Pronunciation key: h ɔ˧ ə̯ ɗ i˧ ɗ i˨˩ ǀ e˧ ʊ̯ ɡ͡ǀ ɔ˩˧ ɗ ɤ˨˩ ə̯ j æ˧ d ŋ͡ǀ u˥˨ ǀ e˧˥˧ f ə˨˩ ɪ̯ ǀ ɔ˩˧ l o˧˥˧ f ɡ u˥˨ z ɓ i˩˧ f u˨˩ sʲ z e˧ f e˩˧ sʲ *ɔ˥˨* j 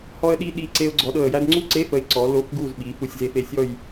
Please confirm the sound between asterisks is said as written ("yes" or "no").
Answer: yes